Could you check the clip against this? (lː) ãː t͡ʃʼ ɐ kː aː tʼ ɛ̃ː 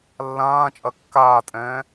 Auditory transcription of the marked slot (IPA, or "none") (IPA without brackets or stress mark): lː